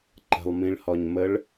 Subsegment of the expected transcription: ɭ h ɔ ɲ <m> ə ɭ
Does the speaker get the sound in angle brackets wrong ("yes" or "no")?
no